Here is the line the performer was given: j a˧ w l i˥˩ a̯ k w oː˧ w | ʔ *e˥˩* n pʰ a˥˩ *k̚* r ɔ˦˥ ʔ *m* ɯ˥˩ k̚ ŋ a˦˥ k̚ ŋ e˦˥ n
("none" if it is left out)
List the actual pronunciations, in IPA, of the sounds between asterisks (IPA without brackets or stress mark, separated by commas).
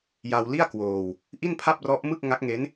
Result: i˥˩, p̚, m